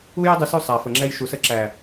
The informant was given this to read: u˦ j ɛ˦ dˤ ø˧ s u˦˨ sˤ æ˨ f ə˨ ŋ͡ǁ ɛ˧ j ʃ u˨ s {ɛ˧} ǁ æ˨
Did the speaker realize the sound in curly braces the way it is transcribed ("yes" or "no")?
no